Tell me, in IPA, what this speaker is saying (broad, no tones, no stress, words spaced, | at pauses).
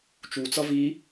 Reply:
t͡ʃut͡sʌ vi